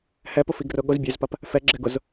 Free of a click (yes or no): no